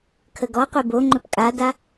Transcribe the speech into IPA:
kʰ ə ɡ ɔ qʷ e b o ŋ͡ǃ ɵ p kʼ a d a

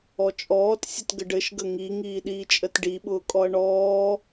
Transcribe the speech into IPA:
ɔ t͡ʃʼ ɔː t sʲ ə t ɡ ə ɖ ɘ ʃ ɡ ə ŋ i ŋ iː ɗ iː t͡ʃʼ ə t ɖ i ɓ ʊː kʼ ɔ ɐ̯ ɳ ɔː

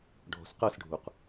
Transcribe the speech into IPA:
ɖʱ ɔ̤ s q ɤ s ɖʱ u q

